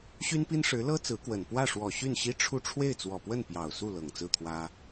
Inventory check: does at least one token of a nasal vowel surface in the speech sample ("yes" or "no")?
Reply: no